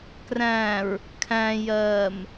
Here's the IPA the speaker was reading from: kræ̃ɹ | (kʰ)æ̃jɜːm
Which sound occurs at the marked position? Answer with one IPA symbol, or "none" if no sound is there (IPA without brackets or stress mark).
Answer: kʰ